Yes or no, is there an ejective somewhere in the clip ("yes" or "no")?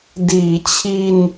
no